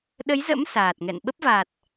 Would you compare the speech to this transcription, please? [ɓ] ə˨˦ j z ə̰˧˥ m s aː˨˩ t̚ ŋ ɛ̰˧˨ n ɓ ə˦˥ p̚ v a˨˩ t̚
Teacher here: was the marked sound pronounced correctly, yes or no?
no